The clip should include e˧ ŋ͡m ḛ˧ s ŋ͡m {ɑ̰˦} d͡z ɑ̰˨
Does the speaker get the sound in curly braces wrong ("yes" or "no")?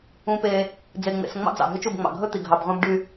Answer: no